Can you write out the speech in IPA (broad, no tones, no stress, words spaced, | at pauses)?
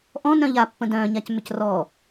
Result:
ʔɔ̃ nœ̃ʎa pːə̃dœ̃ː ɲacmʏcrɔː